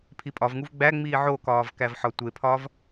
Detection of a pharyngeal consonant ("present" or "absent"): present